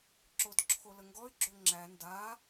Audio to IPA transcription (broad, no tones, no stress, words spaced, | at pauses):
ǁodǁʰoləŋɡɔy̯ ɡ͡ǁoŋ͡ǁæ nda